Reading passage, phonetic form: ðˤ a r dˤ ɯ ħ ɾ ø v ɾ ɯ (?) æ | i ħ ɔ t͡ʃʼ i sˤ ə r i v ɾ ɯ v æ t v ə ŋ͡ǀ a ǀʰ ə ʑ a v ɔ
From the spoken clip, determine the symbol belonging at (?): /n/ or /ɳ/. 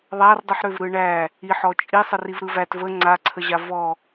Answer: ɳ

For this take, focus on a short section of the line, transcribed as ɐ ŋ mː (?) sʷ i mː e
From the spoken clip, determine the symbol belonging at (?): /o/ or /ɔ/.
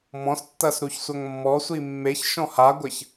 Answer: ɔ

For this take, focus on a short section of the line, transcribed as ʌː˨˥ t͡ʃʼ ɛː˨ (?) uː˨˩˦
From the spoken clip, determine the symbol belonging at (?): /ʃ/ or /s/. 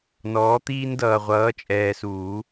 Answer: s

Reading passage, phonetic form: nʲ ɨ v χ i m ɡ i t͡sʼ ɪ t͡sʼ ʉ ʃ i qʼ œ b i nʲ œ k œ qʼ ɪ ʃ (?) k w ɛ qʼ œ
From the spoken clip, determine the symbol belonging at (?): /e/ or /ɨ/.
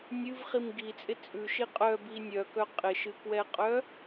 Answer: ɨ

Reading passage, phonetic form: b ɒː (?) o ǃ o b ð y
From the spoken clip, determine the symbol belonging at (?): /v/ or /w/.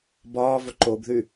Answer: v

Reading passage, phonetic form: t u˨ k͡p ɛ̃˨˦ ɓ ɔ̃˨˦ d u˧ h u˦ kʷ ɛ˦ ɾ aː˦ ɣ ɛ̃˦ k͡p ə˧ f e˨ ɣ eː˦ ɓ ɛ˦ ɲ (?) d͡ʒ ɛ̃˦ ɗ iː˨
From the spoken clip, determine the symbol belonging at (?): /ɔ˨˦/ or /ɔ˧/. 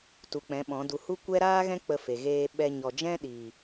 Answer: ɔ˧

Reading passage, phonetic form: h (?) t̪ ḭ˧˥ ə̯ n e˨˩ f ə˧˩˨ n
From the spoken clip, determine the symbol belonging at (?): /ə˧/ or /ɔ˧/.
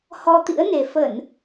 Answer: ɔ˧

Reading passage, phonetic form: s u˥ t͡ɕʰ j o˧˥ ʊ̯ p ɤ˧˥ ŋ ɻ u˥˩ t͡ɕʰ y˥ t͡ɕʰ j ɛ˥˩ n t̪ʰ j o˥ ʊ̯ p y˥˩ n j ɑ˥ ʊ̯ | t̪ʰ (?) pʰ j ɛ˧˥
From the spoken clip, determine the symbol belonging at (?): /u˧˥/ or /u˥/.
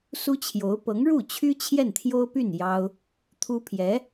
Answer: u˥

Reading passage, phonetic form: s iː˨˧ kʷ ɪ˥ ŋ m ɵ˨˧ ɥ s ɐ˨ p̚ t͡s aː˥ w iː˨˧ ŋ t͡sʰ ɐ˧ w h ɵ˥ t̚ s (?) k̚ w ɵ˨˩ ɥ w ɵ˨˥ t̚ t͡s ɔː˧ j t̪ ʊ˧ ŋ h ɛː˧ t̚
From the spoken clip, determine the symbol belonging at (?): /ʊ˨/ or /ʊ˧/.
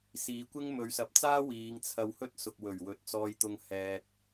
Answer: ʊ˨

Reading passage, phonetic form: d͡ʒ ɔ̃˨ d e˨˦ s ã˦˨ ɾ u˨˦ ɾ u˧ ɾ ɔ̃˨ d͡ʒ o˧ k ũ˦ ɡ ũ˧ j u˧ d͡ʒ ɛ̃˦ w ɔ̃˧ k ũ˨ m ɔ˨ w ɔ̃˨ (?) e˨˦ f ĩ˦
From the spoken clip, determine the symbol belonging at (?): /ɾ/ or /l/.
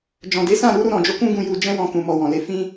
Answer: l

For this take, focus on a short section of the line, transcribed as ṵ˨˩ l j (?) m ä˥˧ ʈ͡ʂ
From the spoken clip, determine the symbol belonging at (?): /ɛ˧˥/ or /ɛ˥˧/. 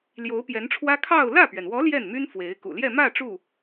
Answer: ɛ˥˧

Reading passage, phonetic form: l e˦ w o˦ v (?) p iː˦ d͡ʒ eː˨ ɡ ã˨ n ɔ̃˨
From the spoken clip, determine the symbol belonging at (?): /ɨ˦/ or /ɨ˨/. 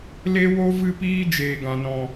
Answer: ɨ˦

